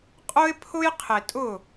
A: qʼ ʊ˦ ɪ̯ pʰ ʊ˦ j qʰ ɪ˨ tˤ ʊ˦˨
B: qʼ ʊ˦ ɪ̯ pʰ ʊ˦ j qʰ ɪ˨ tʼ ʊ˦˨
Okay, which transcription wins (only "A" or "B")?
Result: B